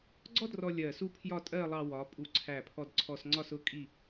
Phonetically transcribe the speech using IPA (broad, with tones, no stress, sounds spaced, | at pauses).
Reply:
ɡ͡ǀ ɔ˥ d r ɔ˧ lʲ ɜ˧˩ s u˥˧ pʰ j ɒ˥˧ tʼ ɜ˥˧ lˠ ɑ˧ w ɒ˩˧ pʼ u˧˩ ǀʰ æ˧˩ pʰ ɔ˧ d ǀʰ ɔ˧ s ŋ͡ǀ ɒ˥˧ s ʊ˥˧ kʼ i˥˧